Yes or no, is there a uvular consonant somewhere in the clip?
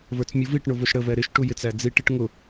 no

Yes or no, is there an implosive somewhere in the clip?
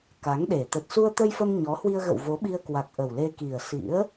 yes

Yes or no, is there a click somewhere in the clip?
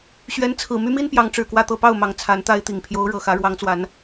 no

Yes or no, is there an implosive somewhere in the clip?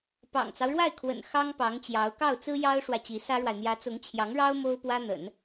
no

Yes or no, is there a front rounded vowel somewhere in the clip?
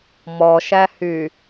yes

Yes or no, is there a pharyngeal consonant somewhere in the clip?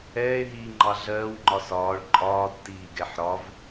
yes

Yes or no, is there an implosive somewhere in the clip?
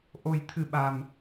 yes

